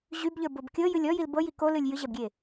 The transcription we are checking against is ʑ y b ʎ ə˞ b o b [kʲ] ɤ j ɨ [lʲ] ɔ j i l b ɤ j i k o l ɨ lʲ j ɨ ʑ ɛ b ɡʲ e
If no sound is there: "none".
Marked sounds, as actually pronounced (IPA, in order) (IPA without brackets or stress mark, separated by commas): kʲ, lʲ